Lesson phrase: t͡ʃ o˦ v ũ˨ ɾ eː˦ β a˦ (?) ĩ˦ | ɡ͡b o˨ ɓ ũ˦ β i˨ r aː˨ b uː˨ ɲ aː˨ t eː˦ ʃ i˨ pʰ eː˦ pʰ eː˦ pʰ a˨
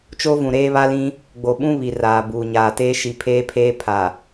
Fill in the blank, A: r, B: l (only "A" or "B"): B